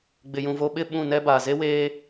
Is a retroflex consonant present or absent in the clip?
absent